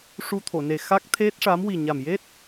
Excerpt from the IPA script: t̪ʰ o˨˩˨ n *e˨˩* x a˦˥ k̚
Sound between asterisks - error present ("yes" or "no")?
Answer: no